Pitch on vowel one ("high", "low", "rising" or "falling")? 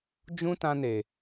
high